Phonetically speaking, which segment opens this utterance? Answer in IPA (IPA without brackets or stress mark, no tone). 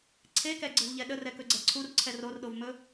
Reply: ǀʰ